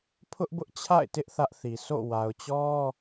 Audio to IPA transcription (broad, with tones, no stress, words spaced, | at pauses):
pʰʊ˦ʔbʊ˦ʔt͡ɕʰa̰˦˨ɪ̯tɪ˦ʔ θä˦ʔθi˨ so̰˦˨ wa˨ʊ̯t͡ɕɔ˦